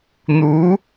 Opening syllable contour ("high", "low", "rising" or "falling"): rising